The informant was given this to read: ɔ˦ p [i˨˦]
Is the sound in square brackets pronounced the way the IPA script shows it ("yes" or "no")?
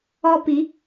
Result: yes